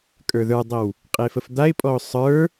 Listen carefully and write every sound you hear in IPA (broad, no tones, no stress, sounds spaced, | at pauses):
kʼ ə˞ ð ə˞ dˤ ə w | qʼ e f ə f d̪ a ɪ̯ pʼ ɔ ʊ̯ sˤ ə˞